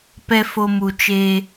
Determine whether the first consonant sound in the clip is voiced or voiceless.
voiceless